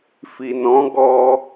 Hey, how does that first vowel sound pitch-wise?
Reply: low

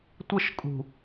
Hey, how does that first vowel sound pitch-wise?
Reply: falling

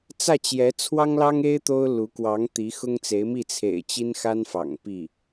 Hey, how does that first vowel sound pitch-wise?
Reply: falling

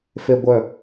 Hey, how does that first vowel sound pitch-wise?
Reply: low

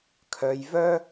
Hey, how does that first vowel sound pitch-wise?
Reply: low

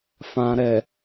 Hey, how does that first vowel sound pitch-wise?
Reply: low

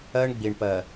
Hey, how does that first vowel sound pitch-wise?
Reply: high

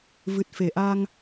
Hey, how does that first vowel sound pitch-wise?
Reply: low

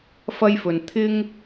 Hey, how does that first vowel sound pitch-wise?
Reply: high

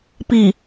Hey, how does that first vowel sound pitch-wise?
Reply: low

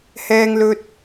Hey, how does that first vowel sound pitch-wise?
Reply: high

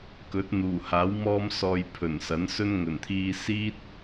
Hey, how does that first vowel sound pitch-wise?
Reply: rising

